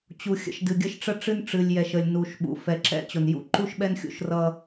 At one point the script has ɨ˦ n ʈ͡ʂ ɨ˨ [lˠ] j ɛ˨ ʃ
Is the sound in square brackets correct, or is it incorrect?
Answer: incorrect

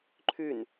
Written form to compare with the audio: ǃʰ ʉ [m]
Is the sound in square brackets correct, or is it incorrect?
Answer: incorrect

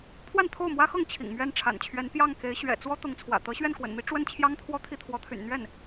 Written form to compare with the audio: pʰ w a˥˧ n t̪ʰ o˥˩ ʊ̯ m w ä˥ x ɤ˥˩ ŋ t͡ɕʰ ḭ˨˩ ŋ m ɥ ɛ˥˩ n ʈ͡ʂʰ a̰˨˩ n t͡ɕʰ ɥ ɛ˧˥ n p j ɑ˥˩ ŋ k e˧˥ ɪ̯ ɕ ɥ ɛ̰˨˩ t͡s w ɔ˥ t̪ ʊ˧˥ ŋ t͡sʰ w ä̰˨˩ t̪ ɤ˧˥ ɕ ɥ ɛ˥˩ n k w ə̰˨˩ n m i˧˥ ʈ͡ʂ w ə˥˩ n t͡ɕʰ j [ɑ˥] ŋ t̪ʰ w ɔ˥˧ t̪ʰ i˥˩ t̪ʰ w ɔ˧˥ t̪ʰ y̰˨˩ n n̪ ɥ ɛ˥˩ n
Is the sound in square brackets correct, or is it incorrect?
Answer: correct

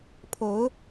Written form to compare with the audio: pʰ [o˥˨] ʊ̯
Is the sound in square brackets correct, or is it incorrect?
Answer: incorrect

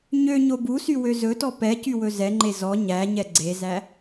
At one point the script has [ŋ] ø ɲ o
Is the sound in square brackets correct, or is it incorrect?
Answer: incorrect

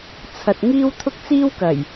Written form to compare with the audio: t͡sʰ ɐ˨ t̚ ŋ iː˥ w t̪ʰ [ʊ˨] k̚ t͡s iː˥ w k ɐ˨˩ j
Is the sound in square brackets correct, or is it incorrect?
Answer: incorrect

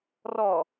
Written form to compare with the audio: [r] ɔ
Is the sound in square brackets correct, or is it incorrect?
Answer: correct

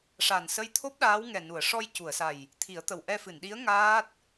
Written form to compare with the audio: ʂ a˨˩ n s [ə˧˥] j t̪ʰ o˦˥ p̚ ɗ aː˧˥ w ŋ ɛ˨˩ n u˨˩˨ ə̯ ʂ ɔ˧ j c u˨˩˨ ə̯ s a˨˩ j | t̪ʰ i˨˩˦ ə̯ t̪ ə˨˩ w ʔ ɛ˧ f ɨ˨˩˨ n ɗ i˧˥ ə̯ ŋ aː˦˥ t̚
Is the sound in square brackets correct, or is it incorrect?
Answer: correct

